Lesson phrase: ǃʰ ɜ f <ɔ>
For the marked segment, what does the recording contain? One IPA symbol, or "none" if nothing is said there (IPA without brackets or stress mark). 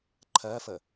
ə